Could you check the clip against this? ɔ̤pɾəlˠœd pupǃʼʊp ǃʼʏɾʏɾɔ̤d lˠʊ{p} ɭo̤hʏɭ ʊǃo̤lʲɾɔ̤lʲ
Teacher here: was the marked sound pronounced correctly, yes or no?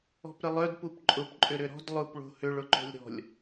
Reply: yes